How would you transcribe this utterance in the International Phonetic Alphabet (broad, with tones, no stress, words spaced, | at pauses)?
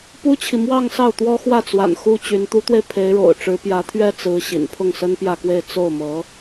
pu˥t͡ɕʰi˨ mwɑ˥˧ŋ sɑ˥˩ʊ̯ t̪wɔ˥ xwä˥˩t͡swa̰˨˩n xu˥t͡ɕy˧˥n t̪u˧˥t̪we˧ɪ̯ pʰe˧˥ɪ̯ɻo̰˨˩ʊ̯ ʈ͡ʂɻ̩˧˥pjä˧˥t̪ʰɥɛ˥ t͡sɹ̩˧˥ ɕḭ˨˩n pʰʊ˥˩ŋsə˥npjä˥˧kwe˥˧ɪ̯ t͡so˥˩ʊ̯mɤ˧˥